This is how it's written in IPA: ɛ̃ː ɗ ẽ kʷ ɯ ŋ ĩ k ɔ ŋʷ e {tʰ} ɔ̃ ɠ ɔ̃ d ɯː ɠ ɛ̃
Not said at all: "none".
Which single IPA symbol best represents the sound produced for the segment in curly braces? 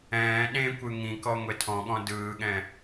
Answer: tʰ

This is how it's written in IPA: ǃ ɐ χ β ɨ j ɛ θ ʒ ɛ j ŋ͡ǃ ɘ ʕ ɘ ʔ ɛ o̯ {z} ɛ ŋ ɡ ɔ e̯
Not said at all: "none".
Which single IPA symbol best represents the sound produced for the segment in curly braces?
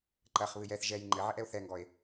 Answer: θ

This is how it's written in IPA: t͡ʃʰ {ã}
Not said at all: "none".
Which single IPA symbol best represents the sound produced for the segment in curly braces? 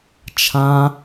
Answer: ã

